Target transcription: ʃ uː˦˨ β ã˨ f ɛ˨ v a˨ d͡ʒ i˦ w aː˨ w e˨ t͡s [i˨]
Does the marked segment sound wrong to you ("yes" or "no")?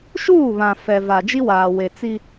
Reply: yes